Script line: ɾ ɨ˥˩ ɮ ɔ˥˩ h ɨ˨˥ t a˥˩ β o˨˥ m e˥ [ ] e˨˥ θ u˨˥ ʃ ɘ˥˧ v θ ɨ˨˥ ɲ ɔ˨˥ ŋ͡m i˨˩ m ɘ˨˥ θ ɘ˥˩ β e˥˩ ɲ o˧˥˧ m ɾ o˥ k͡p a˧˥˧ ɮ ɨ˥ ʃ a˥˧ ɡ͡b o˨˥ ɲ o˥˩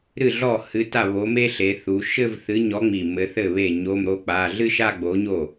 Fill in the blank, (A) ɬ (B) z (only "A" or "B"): A